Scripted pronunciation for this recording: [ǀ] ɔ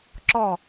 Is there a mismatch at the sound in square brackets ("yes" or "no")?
yes